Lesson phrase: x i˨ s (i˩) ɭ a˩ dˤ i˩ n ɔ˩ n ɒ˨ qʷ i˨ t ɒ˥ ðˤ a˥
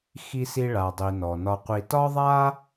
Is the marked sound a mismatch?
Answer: yes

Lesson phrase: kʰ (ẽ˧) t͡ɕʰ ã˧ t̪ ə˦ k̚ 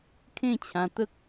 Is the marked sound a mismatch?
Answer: yes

